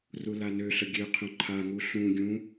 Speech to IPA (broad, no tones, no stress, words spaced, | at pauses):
rulanøɬə ɡʲøqʰœ̃ ǃʰaŋu ɬũ ɡʲũ